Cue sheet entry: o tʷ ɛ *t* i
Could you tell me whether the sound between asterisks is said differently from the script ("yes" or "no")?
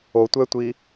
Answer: yes